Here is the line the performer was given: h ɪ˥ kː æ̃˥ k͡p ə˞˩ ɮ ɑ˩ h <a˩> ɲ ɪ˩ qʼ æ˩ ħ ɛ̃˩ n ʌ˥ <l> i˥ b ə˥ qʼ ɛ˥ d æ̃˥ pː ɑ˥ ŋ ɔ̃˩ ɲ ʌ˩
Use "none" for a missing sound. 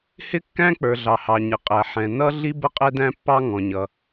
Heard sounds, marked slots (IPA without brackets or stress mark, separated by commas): ɑ˩, ɮ